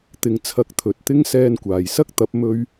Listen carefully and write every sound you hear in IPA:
t̪ ɪ˧ ŋ t͡sʰ ɐ˧ k̚ t̪ʰ ɵ˨ t̚ t̪ ɪ˥ ŋ s ɛː˧ n kʷ aː˨˩ j s ɐ˥ k̚ t̪ ɐ˨˥ p̚ m ɵ˥ ɥ

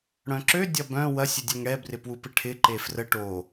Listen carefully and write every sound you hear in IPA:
ɽ œ̃ ǁ ø dʲ ɐ b œ̃ w ɐ sʲ ɪ dʲ ɛ ŋ ɽ ɛ b r ɪ p w u p ɪ ʈʰ ɪ ǃ e f r ə ʈ o

